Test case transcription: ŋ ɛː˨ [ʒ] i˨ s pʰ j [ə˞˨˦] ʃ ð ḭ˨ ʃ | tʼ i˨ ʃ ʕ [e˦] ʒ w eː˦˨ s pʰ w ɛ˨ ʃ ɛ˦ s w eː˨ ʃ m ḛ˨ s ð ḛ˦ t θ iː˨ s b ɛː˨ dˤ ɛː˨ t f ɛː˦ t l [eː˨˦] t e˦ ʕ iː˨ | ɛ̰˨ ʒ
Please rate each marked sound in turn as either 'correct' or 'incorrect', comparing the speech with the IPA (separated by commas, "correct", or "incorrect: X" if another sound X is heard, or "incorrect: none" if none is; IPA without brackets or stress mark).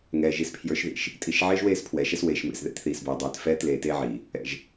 correct, correct, incorrect: eː˦, incorrect: eː˨